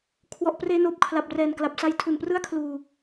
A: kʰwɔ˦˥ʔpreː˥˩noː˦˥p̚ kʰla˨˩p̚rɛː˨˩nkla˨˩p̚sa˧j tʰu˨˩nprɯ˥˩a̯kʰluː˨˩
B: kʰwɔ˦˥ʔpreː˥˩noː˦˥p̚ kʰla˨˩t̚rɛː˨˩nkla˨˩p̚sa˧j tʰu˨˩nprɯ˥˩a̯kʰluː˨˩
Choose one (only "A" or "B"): A